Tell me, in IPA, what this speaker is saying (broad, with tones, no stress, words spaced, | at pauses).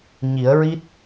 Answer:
ɲi˨˩˦ə̯ɹi˦˥t̚